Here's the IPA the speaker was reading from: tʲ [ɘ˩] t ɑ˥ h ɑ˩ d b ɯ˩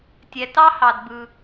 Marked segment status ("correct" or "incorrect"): incorrect